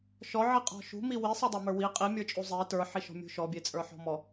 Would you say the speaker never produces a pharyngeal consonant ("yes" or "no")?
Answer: no